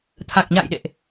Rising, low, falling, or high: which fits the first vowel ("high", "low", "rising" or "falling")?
low